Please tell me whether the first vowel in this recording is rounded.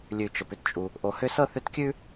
yes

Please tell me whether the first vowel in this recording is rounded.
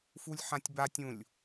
yes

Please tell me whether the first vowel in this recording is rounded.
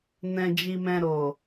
no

